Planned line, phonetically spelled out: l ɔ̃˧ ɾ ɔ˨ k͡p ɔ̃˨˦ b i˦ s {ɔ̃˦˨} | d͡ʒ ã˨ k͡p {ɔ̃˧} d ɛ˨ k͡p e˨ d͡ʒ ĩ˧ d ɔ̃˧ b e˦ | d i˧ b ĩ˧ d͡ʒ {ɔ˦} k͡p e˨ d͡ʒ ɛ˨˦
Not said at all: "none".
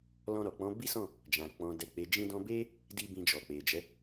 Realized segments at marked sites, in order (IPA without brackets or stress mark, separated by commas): ɔ̃˦˨, ɔ̃˨, ɔ˨